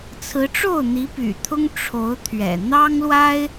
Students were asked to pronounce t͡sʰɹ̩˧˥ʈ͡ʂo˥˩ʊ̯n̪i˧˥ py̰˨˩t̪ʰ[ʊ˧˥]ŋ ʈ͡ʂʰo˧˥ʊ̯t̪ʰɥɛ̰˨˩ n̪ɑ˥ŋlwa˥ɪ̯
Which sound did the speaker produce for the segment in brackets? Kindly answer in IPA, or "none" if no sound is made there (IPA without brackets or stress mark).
ʊ˥